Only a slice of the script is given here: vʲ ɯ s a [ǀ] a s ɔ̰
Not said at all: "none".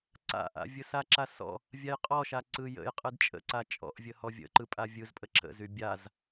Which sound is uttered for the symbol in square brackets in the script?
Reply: ǁ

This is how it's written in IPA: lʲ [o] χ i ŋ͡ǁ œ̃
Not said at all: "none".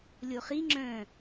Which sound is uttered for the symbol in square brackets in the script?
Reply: o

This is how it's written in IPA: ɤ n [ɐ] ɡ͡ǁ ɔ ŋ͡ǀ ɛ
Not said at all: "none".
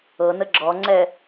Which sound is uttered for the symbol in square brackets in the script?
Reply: ə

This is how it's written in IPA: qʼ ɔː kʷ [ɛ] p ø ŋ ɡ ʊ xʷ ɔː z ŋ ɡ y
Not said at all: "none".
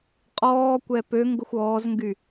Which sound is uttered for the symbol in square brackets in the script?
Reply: ɛ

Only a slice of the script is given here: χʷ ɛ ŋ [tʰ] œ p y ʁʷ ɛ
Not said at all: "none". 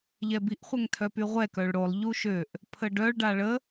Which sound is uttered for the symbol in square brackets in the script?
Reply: tʰ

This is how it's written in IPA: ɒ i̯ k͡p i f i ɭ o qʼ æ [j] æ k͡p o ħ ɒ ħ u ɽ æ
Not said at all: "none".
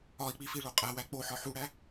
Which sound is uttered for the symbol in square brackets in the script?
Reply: w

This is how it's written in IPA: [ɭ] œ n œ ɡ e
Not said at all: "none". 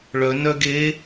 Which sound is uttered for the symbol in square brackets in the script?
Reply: ɭ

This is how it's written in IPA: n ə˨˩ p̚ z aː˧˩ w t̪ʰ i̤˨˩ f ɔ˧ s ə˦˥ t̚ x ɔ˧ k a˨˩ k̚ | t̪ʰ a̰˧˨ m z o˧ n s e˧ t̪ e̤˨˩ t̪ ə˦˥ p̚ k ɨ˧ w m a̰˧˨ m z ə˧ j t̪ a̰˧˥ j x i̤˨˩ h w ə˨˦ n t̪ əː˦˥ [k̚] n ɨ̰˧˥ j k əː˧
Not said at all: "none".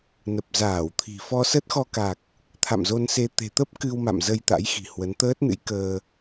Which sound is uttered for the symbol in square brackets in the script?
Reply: t̚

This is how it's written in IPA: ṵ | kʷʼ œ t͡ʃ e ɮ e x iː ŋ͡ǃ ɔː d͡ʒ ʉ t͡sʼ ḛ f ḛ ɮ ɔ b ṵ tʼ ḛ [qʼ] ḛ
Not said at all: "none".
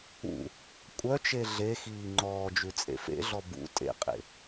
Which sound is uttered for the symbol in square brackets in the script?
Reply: qʼ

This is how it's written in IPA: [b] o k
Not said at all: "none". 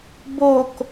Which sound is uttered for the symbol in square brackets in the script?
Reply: b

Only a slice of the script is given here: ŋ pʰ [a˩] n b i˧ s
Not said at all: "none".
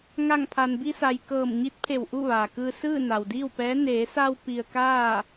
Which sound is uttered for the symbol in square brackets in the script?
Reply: a˩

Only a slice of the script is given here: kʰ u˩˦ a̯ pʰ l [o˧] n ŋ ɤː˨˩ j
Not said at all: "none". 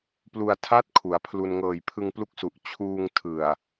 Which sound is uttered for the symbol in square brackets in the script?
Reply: u˧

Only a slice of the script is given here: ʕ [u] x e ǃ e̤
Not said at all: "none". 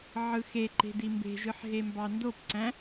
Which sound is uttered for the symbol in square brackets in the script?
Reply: ɯ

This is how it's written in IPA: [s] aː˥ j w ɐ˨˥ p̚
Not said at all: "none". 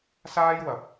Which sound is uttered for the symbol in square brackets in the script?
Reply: s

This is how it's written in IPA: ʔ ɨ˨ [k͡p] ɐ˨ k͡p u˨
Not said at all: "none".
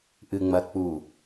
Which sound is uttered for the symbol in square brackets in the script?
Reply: ŋ͡m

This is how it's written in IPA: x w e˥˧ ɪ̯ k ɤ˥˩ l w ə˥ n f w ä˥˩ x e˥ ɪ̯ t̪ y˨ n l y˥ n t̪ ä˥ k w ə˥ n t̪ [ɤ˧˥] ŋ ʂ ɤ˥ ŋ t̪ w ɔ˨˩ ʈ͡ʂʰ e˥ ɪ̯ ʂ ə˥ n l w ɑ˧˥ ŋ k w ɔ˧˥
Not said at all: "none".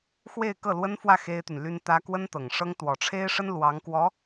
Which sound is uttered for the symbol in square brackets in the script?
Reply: ɤ˨˩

